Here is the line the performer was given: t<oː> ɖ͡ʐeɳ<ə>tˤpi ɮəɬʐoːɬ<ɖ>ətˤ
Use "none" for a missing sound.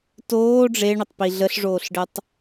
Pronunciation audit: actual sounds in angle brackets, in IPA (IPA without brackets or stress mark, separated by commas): oː, ə, ɖ